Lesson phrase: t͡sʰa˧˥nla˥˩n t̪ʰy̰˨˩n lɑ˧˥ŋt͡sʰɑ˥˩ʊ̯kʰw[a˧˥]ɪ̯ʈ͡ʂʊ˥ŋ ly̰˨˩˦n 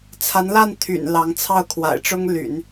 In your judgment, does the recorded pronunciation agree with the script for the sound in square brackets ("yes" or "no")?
no